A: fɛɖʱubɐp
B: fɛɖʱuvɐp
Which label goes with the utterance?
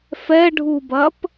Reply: A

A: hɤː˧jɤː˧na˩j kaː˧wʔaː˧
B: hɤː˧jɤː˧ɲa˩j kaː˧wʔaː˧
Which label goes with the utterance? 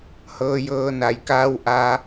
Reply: A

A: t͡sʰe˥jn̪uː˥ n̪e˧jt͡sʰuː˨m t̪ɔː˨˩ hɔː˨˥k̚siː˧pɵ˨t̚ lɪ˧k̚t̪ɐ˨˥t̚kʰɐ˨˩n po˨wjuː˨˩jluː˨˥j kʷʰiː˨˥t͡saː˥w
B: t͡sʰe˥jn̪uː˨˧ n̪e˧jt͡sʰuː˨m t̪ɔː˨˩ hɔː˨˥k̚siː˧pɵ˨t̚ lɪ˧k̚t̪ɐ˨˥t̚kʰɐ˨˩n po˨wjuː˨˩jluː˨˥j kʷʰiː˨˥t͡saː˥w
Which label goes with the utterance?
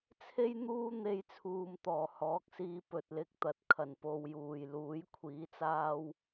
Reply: A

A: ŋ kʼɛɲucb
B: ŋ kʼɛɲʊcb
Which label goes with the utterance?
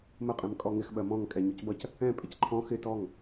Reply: A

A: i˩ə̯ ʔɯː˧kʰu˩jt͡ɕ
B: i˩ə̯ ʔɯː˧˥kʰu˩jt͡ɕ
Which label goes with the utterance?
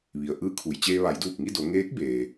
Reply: B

